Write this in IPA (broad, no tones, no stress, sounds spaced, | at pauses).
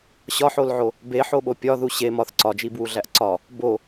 ɕ ɒ ħ o l ʕ o | b e ħ o ɓ o pʲ ɒ ð u ɕ e m ɒ θ ǀ ɒ d͡ʒ i b w u ɮ æ ʔ ǀ ɒ | b o